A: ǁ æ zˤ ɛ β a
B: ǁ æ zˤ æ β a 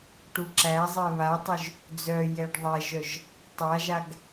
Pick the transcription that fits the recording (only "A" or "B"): A